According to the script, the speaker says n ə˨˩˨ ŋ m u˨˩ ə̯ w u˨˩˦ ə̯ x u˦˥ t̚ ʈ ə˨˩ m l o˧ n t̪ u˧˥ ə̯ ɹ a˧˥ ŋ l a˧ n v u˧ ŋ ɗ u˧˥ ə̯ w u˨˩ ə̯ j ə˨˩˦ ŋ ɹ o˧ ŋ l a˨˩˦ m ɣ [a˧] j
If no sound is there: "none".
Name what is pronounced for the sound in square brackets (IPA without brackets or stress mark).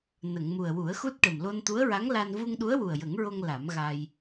a˧